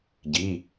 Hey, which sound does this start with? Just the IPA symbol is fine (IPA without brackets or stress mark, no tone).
ɟ